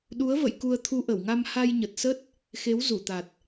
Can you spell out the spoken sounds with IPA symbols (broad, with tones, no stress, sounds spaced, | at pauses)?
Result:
ɗ u˨˦ ə̯ v ə̰˧˨ j k u˧ ə̯ t̪ʰ u˧ ʔ ə˧˩ w ŋ a˧ m h a˧ j ɲ ə˨˩ t̚ s ə˦˥ t̚ | x e˨˦ w z u˧˩ t̪ a˨˩ t̚